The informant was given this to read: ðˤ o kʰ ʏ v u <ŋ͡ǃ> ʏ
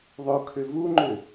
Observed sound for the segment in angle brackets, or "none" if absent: ŋ͡ǃ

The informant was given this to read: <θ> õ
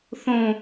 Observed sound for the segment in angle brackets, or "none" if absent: θ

